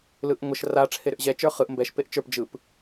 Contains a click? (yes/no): no